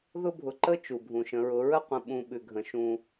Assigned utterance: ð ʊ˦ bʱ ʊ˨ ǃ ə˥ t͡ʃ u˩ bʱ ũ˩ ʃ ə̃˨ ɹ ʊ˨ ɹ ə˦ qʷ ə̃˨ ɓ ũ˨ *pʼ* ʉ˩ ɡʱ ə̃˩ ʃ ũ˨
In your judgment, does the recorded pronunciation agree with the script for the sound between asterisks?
no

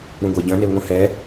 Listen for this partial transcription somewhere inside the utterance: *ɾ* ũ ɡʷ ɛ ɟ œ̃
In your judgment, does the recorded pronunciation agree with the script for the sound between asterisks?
yes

